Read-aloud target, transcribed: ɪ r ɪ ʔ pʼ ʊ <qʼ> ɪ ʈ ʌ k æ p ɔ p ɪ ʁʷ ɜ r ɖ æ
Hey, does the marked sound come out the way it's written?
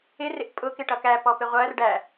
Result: no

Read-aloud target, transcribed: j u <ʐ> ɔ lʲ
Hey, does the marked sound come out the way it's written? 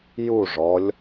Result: yes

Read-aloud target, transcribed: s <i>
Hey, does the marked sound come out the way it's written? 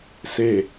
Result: no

